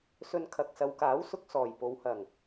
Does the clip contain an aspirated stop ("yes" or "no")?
yes